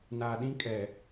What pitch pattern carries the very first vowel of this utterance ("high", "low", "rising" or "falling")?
low